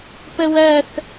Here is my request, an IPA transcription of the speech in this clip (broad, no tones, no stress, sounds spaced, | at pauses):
p ə w ɜ θ